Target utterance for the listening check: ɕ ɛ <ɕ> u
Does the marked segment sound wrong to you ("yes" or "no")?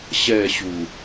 no